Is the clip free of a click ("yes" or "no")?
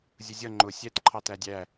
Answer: no